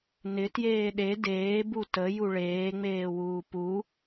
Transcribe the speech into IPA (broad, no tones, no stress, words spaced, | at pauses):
nɪ tjeːɗe deːbu tə juɭeːŋ͡meːwuː pu